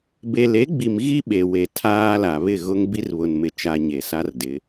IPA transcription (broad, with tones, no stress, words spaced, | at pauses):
be˨le˨˦ɡ͡bi˨m ɣi˦ ɓe˨we˨ tʰaː˦la˨ βɪ˦˨ɣʊ˦ŋ bi˦rβʊ˨nmɪ˨t͡ʃa˨ ɲe˨ sa˦rdɪ˨˦